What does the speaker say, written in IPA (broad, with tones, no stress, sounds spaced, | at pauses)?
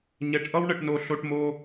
ɲ ɛ˧ ʈ ʔ ʌ˥ w ɳ ə˧ ʈ n o˧ ɬ o˧ ʈ m o˧